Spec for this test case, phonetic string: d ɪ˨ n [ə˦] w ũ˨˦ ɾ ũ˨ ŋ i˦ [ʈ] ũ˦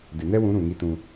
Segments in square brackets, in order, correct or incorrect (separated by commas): incorrect, incorrect